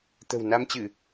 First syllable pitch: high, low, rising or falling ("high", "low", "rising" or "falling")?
low